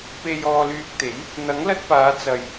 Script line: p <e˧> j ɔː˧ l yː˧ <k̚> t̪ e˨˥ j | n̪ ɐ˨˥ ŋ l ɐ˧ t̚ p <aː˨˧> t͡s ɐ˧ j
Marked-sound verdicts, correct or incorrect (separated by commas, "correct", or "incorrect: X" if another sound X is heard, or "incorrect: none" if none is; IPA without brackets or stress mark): correct, correct, correct